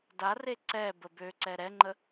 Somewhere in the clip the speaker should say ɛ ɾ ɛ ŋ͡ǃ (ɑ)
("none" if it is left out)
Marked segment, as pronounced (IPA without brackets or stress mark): ə